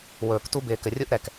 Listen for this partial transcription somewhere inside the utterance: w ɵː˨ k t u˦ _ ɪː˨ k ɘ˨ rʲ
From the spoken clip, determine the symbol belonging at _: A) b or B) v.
A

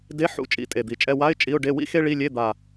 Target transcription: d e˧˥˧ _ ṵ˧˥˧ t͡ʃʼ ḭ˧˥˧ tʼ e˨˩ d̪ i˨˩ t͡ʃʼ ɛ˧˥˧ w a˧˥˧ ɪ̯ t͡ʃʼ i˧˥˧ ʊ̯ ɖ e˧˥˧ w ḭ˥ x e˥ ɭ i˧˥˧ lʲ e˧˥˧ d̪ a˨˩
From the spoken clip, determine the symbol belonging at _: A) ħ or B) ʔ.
A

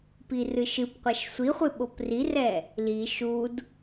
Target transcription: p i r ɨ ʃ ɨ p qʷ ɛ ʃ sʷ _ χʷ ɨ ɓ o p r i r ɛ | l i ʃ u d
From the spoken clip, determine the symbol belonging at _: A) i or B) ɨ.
A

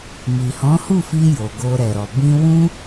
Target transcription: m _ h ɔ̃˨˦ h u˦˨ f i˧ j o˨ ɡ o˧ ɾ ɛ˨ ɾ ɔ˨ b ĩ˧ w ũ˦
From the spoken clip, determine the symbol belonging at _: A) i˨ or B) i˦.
A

